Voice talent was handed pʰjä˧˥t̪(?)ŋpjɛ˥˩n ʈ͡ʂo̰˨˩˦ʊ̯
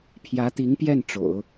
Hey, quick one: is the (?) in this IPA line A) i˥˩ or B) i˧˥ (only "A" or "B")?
B